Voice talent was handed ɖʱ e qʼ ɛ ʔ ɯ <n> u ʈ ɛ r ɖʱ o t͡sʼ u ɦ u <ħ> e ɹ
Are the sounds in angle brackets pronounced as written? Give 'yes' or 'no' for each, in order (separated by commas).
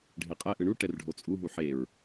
no, yes